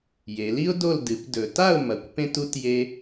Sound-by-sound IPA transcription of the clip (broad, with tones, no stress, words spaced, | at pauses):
je˩˧li˥ʊ̯do˥˨l dɨ˩˧p dɵ˨˩ ta˥˨ʊ̯mɐ˩˧kʷ pẽ˥tu˥tje˥